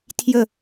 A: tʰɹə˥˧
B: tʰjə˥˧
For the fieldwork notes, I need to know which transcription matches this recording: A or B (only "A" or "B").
B